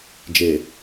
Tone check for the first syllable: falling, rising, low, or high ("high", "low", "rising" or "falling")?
low